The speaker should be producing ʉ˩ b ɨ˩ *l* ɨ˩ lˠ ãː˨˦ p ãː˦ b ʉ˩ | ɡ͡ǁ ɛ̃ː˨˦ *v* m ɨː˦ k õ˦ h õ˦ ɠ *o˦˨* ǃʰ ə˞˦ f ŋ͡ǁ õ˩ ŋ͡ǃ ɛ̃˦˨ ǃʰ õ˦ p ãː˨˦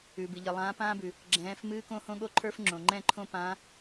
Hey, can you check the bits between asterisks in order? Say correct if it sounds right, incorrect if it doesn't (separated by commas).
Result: incorrect, incorrect, incorrect